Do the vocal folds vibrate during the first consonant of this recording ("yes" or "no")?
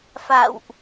no